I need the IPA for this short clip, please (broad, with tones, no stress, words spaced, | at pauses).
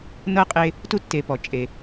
nɤ˥qʼe˦ | tu˦tːe˨pɔ˩ t͡ʃʼe˩